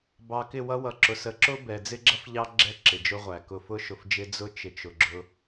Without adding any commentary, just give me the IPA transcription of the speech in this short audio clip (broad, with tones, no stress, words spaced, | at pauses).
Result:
bɑ˨kɪ˦˨wʌ˦ wʌ˨ǁʊ˨s ə˨ǁʊ˦ bɛ˨d͡zɪ˦ɡ͡ǁʌ˦fʎɑ˦ ɡ͡ǁɛ˦ǁɪ˨d͡ʒʊ˦ʁʷæ˨ kʊ˨fʊ˦ʃʊ˨fd͡ʒɪ˦ d͡zʊ˦ t͡ʃɪ˨t͡ʃʊ˨ɡ͡ǁʊ˦